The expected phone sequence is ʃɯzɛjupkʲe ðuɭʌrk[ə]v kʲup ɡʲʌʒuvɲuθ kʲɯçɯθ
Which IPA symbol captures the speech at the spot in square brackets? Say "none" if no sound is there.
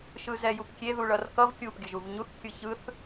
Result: ʌ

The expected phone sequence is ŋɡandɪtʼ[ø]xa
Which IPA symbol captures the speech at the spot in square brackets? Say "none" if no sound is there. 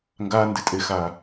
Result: e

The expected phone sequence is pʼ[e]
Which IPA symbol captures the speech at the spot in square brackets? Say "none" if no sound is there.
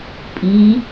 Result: i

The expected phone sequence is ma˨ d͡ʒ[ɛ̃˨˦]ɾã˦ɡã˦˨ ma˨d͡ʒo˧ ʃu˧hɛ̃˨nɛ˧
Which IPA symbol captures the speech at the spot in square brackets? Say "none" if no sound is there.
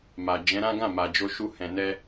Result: ɛ̃˨˦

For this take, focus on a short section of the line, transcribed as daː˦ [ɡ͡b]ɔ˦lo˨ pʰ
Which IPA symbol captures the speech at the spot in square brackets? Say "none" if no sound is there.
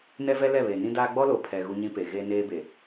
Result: ɡ͡b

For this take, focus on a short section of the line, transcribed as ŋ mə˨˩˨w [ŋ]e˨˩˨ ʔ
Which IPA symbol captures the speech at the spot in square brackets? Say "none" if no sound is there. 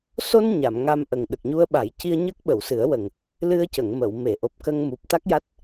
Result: m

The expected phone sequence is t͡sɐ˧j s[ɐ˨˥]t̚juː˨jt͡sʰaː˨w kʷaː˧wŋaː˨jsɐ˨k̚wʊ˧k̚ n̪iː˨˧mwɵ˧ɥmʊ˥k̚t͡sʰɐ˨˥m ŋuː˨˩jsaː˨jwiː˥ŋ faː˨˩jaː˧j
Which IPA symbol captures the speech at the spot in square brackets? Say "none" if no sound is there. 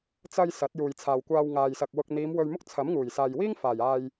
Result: ɐ˨˥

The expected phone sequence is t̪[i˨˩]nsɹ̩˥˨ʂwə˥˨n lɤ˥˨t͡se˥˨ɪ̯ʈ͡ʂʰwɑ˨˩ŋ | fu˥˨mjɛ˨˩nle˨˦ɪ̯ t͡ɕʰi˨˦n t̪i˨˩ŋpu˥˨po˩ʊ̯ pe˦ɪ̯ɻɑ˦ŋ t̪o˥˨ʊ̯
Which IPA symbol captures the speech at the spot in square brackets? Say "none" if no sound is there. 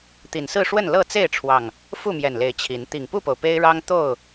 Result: i˨˩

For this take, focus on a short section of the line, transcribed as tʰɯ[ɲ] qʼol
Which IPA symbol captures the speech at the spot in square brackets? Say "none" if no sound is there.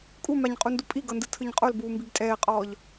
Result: ɲ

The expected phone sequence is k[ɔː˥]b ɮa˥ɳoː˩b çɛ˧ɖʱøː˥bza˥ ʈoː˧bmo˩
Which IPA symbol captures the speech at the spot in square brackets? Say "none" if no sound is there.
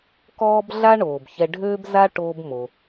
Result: ɔː˥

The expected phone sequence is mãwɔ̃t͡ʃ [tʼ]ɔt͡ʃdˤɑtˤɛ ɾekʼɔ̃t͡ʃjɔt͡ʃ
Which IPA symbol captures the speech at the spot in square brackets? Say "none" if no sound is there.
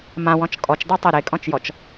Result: kʼ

